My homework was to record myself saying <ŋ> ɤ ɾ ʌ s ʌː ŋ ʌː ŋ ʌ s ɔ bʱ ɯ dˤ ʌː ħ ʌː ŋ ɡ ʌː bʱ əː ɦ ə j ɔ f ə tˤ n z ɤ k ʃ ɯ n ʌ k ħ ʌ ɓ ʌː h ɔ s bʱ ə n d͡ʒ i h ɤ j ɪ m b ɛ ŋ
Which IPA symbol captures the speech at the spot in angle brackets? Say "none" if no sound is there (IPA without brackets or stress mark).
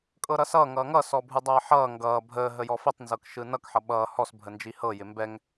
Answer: kʼ